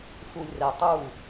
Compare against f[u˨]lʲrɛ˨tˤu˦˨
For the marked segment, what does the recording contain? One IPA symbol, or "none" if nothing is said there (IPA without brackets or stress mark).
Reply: u˨